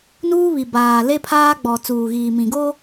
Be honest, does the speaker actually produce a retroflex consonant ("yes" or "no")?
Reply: no